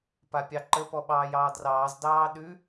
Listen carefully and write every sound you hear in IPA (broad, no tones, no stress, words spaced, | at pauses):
papʲɑǃə pɔɓɑːjɑːdrɑːz dɑːɗʉ